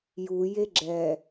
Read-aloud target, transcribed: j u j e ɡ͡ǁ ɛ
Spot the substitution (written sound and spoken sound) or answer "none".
none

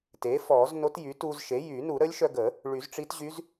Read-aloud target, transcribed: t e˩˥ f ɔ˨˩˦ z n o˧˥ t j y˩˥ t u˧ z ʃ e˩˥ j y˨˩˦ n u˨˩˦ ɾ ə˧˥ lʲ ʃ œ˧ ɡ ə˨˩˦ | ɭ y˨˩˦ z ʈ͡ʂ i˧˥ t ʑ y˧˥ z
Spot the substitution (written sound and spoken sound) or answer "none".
none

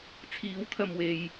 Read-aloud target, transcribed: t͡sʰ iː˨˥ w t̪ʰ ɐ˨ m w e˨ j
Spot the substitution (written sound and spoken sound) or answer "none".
none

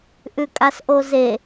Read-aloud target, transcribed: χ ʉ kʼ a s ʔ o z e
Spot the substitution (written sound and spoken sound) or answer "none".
χ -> ʔ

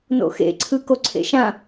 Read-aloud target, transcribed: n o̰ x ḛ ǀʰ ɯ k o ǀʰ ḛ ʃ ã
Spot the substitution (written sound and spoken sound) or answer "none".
none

